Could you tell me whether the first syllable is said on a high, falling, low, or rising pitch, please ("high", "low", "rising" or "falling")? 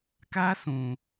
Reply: high